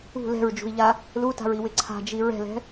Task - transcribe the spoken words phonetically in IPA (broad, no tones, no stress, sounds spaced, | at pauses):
ṳ l ɛ̤ ɹ d͡ʒ ṳ i̯ ʎ a | l u t a̤ ɹ i w ɪ ǀʰ a̤ d͡ʒ i ɹ ɛ̤ l ɛ̤